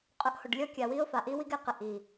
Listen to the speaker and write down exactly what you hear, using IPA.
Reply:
qʼ ʊ˧ ʔ h ʊ˨ ɖ lʲ ɔ˦ kʲ a˨ w i˦ ʊ̯ f a˨ ʔ i˦ w i˦ ɡ ɛ˧ q ɪ˧ ʔ i˨

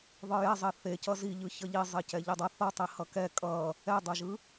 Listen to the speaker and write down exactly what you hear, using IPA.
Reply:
ðˤ ɯ j ɛ zˤ e θ e c ʌ z i ʎ ɯ ç ʌ ʎ i zˤ e c ɛ ʎ i dˤ ʌ θ ʌ tˤ i h ʌ k ɛ kʼ ʌ | ɛ dˤ o ʒ ɯ

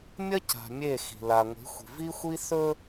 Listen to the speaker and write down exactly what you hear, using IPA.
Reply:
mʲ ɐ˦ c a̤˨ mʲ e˦˨ x i̤˨ l a˨ ŋʷ i̤˨˦ xʷ i̤˨ v i˦ xʷ i˦ s ɵ˦

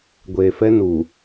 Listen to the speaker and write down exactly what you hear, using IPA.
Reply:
ɡʷ eː˨ f ɛ˦ n u˨

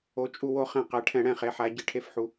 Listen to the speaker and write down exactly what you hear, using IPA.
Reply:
o˩˧ t͡ʃʼ u˧˩ w o˧˩˧ χ ɛ̃˧˩˧ q ɛ˩˧ ʈʰ ɛ̃˧˩˧ ɽ ɛ̃˧˩ χ e˩˧ ħ a˩˧ ɟ i˩˧ ʈʰ e˧˩ f ħ u˩˧

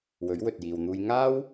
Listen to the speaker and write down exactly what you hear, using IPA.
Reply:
w ɵ˨˥ ɥ w ɵ˨ t̚ j iː˨ w n̪ uː˧ j ŋ aː˥ w

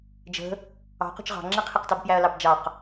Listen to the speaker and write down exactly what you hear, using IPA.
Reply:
d͡ʒ ə̤ | ɑ̤ q ṳ t͡ʃ ʁ ɑ̤ ŋ͡ǁ ɪ qʰ ɪ q t ɑ b p j æ ɐ̯ l ɑ b d͡ʒ ɑ q

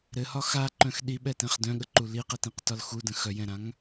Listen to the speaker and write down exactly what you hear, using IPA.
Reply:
ɾ ɘ h ɒ x a ǃ œ̃ x ɗ i ɓ ɛ t ɛ̃ χ d œ̃ ɠ ə ǃ u l i q ɛ t ĩ q t ɒ l x u d ə̃ x œ j ɛ̃ ɾ ã ŋ

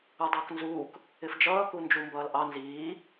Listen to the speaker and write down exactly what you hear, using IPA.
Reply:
u dˤ ʌː k n z uː k | ɪ f d͡ʒ ʌː k u n d͡ʒ u m b ʌː l ʔ ɑ n z iː

